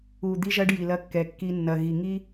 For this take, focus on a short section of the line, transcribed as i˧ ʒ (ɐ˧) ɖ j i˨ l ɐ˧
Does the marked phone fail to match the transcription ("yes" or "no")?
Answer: no